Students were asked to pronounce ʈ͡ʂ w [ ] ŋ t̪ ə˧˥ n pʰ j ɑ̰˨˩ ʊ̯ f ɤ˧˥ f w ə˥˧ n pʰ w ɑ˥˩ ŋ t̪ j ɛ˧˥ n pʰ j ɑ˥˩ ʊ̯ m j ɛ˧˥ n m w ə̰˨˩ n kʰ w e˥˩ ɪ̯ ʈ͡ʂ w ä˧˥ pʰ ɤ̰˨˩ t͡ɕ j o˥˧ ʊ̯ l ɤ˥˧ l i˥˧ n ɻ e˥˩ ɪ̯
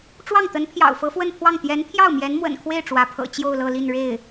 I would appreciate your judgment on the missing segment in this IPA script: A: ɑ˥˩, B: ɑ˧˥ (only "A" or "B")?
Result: A